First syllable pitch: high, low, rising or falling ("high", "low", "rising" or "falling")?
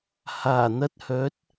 low